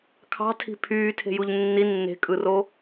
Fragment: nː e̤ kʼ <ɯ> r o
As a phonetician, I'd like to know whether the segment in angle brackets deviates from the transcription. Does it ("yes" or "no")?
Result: no